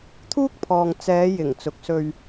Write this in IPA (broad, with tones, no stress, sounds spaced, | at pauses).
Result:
t̪ʰ uː˥ k̚ pʰ ɔː˨ ŋ t͡s ɛː˨˧ j ɪ˨˩ ŋ t͡s ʊ˨˥ k̚ s ɵ˧ ɥ